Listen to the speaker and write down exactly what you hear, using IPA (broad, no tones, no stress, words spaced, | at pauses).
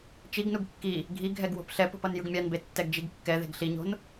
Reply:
t͡ʃiɡnuɡ kːi | ɡʱi ɡʱɛɡwo̤pɬɛpo̤p ʌnjɯɡmʲanbe tːɛɡd͡ʒiɡkːɛðe̤ɡ ɬiɲo̤n